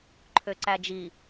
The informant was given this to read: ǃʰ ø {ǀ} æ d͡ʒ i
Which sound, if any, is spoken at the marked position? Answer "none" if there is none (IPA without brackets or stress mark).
ǀ